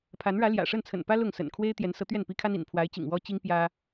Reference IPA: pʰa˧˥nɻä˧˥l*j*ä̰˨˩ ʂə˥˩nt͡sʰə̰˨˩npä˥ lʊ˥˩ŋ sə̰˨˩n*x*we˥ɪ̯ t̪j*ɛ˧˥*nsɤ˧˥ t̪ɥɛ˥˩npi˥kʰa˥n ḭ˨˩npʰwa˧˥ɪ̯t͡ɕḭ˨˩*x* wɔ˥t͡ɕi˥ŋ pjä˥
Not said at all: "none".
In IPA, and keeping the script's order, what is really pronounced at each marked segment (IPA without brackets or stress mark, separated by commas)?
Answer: j, kʰ, ɛ˧˥, ŋ